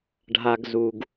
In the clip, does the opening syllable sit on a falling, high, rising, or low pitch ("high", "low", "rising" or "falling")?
low